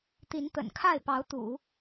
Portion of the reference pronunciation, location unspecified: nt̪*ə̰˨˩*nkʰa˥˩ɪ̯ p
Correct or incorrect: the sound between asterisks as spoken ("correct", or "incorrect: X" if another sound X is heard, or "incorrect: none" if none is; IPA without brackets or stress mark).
correct